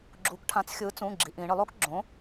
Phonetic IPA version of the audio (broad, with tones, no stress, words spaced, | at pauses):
ɡ͡ǁu˩˧kʈʰã˩˥t͡sxʲɯː˩˥ t͡sũ˩˧˩ ɡ͡ǁi˩˧ʔĩː˩˧ ɳɯ˧˩˧lˠo˦˥k ɡ͡ǁõ˩˥